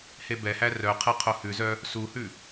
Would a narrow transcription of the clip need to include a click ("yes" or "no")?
no